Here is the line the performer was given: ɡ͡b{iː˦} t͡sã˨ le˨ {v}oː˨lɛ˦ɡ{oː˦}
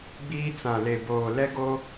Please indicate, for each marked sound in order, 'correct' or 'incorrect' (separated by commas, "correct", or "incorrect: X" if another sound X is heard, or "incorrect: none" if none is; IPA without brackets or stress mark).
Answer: correct, incorrect: b, incorrect: o˦